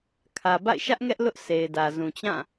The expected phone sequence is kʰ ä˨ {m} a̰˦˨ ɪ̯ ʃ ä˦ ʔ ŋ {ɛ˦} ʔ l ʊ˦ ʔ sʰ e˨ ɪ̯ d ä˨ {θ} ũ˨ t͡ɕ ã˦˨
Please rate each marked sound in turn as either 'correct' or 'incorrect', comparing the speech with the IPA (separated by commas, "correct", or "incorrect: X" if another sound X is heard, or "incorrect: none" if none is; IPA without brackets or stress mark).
incorrect: b, correct, incorrect: z